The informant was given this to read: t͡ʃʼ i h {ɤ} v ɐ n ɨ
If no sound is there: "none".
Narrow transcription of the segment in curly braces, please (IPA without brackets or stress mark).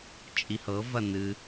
ɤ